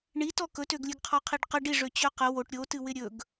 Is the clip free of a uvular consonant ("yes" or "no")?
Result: no